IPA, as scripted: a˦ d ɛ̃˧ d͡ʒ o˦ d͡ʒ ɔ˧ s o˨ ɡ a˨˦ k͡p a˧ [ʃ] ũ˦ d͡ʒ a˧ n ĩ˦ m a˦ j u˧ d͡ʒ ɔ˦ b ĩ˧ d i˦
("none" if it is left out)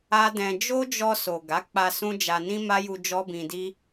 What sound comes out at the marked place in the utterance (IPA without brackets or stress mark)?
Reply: s